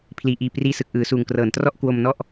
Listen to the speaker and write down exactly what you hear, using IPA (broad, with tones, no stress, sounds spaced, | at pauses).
pʰ l iː˨˩ ʔ iː˧ p r iː˧ s ɯ˨˩ k̚ ʔ ɯː˩˦ s uː˨˩ ŋ k r ɤː˩˦ n t r ɔ˥˩ ʔ k w o˧ m n ɔ˥˩ ʔ